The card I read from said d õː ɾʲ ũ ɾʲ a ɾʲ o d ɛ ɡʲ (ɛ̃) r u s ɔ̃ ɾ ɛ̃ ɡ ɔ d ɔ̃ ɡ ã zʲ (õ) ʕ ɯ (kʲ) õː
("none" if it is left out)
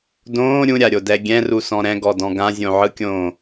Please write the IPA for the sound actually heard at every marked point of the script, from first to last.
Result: ɛ̃, õ, kʲ

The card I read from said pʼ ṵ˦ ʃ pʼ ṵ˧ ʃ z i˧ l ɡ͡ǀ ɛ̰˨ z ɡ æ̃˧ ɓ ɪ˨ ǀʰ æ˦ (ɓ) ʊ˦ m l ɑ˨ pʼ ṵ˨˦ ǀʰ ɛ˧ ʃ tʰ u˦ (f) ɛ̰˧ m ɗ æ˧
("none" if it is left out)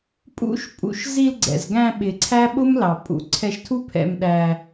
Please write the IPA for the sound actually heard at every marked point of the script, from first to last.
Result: ɓ, pʰ

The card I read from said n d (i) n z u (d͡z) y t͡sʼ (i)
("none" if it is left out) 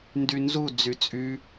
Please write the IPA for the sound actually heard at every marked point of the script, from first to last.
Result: y, d͡z, y

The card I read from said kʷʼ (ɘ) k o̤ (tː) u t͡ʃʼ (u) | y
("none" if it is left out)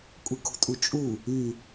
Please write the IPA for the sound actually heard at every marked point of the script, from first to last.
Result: ɘ, tʼ, u

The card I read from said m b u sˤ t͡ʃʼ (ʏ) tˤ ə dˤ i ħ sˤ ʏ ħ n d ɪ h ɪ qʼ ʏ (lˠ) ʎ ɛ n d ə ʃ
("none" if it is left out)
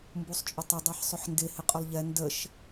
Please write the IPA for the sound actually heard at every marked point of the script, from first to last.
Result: ʏ, lˠ

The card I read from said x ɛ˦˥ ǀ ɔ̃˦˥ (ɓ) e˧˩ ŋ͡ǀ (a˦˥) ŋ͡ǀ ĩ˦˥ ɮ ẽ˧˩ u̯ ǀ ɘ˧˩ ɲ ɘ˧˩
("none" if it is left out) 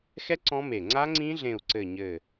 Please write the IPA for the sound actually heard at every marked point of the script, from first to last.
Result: m, a˦˥

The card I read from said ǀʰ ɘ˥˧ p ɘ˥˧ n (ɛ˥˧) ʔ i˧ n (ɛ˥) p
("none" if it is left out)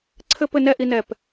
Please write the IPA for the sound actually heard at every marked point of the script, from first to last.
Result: ɛ˥˧, ɛ˧˩

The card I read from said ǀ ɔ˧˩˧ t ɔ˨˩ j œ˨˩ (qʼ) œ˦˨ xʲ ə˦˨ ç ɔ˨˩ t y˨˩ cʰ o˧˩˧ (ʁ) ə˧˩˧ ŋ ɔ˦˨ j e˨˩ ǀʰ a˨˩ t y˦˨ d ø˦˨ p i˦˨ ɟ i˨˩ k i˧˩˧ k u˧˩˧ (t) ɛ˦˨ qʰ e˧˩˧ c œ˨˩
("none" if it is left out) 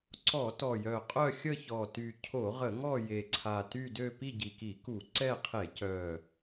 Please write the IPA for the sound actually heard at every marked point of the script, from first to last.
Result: qʼ, ʁ, ǀ

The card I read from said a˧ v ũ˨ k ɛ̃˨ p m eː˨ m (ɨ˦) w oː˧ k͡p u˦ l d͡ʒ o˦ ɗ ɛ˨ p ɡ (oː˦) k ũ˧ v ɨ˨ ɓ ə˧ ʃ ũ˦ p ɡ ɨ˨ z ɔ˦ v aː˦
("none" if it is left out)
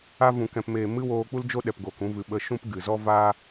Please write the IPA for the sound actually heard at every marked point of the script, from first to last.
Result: ɨ˦, oː˨

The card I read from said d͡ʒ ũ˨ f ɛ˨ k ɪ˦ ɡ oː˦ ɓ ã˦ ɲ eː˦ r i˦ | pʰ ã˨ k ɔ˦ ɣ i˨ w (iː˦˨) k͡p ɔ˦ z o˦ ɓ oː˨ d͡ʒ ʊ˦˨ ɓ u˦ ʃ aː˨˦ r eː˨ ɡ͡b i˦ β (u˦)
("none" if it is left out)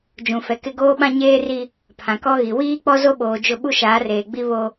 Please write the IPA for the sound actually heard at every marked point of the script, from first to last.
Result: iː˦, o˦

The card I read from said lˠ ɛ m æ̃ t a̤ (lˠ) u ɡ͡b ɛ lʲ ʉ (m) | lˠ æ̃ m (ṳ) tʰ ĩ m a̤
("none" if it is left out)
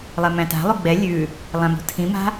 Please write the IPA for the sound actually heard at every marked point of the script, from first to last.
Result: lˠ, none, ṳ

